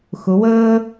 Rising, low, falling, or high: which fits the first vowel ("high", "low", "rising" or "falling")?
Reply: rising